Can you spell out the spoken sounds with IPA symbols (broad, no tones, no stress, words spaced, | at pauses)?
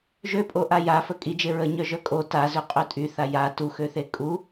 ʒøpʼoʔa jafə kʼid͡ʒe ɹəɲœʒœ kʼo tazøqʼø tʼyθa ja tuxøθe kʼu